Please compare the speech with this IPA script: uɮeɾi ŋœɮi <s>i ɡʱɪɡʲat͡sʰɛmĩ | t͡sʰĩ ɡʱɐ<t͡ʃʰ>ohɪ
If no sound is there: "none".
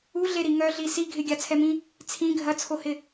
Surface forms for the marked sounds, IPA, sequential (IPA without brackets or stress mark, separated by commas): s, t͡sʰ